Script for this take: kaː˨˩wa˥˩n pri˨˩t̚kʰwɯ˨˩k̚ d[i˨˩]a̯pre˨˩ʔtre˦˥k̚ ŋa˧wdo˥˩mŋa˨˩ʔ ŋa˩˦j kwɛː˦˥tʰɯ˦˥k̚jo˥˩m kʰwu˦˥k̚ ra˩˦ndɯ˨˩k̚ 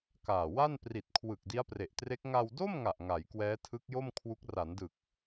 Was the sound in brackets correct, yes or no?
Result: no